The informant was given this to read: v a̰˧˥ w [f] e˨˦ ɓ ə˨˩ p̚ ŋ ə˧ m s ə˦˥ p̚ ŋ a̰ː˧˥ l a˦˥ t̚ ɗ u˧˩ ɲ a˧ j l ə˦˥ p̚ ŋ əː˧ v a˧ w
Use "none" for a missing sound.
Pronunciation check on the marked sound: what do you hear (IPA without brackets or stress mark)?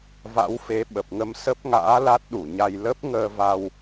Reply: f